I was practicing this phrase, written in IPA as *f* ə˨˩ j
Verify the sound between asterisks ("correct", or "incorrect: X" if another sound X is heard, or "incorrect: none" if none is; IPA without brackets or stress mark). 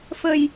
correct